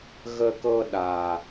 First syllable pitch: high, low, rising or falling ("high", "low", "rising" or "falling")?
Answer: high